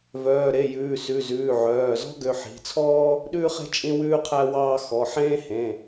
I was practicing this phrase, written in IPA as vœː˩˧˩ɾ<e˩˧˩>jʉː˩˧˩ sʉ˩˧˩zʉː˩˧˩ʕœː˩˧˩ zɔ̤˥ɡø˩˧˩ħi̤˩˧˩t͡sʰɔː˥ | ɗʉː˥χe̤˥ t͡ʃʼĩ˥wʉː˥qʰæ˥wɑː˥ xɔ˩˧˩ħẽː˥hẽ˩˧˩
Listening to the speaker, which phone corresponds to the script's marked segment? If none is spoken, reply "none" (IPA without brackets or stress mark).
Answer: e˩˧˩